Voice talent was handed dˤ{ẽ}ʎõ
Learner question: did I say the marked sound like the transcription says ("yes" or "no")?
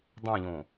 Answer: yes